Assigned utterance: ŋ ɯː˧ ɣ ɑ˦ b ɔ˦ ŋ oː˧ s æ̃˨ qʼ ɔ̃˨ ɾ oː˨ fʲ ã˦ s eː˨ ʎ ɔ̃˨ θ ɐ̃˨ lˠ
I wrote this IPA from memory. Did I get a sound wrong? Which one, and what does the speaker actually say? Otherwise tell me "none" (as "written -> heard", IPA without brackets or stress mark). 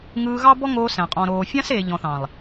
ɐ̃˨ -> ɑ̃˨